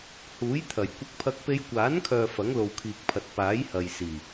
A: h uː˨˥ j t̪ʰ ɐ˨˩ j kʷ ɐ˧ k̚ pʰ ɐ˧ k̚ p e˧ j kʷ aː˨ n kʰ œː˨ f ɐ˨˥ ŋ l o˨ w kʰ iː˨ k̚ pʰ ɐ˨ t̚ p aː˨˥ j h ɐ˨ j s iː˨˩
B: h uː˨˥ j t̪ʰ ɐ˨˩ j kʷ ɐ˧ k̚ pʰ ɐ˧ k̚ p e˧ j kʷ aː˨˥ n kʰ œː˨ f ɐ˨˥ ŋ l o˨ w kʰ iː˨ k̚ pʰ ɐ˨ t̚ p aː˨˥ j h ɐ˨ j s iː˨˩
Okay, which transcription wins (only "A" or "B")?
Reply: B